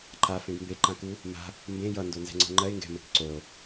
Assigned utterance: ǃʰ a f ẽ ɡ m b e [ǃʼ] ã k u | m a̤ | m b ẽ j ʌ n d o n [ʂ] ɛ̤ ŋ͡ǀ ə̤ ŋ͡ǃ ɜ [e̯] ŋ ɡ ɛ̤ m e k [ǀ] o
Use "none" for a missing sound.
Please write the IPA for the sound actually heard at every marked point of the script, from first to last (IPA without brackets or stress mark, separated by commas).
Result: ǃ, z, e̯, ǀ